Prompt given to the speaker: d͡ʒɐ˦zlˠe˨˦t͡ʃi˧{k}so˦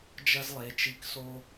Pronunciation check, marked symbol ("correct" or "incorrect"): correct